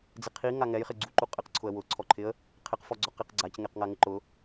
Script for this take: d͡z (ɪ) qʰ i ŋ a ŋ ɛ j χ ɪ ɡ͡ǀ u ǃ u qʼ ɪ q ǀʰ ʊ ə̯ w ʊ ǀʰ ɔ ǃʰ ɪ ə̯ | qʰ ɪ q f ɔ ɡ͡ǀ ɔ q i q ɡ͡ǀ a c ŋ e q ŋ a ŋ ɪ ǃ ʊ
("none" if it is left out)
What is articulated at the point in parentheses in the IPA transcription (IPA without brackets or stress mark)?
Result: ɪ